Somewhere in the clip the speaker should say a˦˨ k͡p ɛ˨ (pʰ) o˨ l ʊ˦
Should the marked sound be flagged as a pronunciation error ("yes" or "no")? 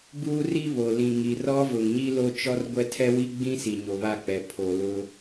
no